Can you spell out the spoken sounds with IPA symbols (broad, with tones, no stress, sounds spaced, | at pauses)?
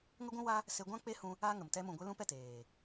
ŋ ə˦ ɡʷ ũ˦ w a˦ | s e˧ ɡʷ ã˦ k͡p e˦ h ũ˧ | a˦ ŋ ə˨ m t ɛ˦ m ũ˨ ɡʷ e˧ l ũ˦ p ɛ˨ t eː˨